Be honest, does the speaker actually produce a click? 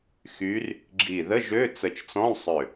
yes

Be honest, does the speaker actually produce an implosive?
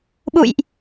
yes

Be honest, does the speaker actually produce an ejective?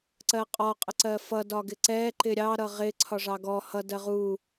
yes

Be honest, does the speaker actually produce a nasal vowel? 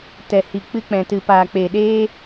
yes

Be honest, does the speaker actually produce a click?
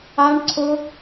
yes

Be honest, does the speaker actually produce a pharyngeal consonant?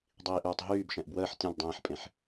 yes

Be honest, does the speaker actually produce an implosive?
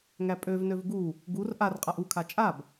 no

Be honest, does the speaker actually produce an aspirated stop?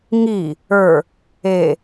no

